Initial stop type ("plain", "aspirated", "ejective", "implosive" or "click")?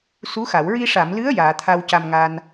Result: aspirated